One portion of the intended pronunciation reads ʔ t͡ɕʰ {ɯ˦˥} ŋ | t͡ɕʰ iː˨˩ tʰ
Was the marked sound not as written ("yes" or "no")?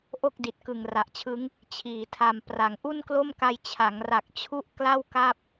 no